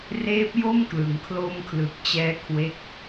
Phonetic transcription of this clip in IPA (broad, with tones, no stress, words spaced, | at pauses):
reː˦˥p̚jo˥˩mklɯ˩˦ŋ kʰlo˧mkʰlɯ˨˩k̚ t͡ɕɛː˦˥kʰwe˦˥k̚